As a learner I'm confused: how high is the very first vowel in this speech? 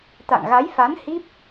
low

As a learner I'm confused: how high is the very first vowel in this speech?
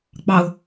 low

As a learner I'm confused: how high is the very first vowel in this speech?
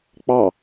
low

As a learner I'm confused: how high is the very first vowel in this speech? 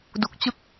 high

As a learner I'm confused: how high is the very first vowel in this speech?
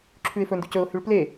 high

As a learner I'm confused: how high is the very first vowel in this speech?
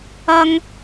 low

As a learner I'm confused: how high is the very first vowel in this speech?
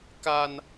low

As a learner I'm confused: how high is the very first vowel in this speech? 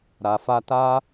low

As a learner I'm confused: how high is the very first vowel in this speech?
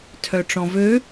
mid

